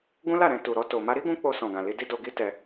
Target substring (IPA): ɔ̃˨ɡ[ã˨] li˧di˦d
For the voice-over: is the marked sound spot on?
yes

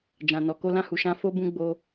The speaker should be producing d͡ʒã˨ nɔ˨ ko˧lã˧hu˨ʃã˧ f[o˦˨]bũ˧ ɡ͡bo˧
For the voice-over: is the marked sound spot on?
no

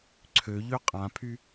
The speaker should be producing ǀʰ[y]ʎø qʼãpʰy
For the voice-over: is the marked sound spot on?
no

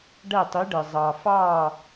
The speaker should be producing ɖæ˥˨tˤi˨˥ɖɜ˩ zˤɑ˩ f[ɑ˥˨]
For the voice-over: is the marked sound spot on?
yes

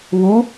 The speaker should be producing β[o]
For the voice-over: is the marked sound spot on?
no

